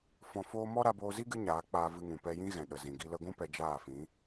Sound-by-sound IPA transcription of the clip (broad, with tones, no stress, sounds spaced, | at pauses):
f ɔ̃˧ f oː˦ m ɔ˦ ɾ a˧ b oː˧ z i˦ ɡ ɨ˦ ɲ aː˨˦ k͡p aː˧ v ɨ˧ ŋ ũ˨ p ɛ˧ j ĩ˦ ɣ ɛ̃˨ ɗ ə˨ z ĩ˨ ɡ i˧ l ə˧ ɡʷ ũ˦ p ɛ˧ d͡ʒ aː˦˨ f ĩ˨˦